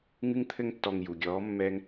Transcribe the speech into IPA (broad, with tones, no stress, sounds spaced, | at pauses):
ŋ ɨ˧ ŋ t̪ʰ ɘ˧ ŋ tː ɔ˨ ŋ j u˨ ɡʲ ɔː˨˦ mː ɛ˧ ŋ